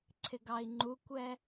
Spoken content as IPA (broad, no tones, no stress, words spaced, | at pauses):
ǀʰɪɡɑi̯ŋ͡ǃukʷɛ